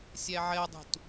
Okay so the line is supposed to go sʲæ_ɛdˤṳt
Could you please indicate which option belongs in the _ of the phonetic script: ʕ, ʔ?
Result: ʕ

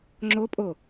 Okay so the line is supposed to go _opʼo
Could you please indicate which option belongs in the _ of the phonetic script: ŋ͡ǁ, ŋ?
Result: ŋ͡ǁ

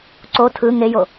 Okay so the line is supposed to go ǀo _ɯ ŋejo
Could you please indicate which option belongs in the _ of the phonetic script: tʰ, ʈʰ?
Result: tʰ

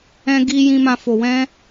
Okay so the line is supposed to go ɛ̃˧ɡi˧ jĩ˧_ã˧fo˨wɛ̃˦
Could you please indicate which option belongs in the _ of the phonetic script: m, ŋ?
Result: m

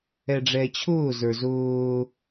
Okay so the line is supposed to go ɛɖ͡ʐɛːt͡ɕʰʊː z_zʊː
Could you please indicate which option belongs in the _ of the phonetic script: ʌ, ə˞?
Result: ə˞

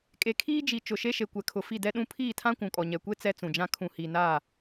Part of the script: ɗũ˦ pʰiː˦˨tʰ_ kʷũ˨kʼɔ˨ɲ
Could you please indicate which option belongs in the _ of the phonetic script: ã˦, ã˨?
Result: ã˦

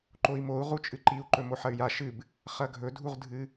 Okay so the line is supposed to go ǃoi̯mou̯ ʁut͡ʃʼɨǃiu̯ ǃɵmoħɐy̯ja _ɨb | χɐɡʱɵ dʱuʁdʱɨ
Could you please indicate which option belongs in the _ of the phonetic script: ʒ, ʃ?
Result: ʃ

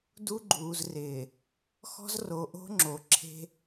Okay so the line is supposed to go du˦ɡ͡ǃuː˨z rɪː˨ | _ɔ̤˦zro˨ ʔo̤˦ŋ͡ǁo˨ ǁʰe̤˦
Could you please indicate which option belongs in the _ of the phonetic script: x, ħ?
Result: x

